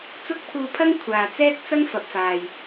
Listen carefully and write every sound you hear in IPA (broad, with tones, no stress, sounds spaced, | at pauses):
t͡s ʊ˥ k̚ pʰ uː˧ pʰ ɐ˥ ŋ kʷʰ aː˨ t͡s ɛː˥ k̚ t͡s ɐ˥ ŋ f ɐ˨ p̚ f aː˨ j